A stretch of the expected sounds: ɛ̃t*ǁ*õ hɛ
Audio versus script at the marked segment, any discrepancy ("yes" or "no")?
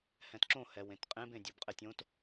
no